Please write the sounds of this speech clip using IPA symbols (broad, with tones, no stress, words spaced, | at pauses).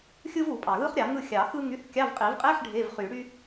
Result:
xʲɯ˥vu˨˩˦pʼɑ˩ɣɯ˥χ ɾʲɑ˨˩˦ŋɯ˥˨ xʲɑ˨˩˦ xɯ˥ŋy˧˥˧θ kʲɑ˧˥˧vqʼi˨˩˦v qʼe˧˥˧ħ ɖʱe˧˥˧vχy˨˩˦ ɽy˥